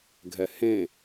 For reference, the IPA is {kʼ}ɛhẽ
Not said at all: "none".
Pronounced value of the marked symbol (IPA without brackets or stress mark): ɡʱ